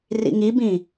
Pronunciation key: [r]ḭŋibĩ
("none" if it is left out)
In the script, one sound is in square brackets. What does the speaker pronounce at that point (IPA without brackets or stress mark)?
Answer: r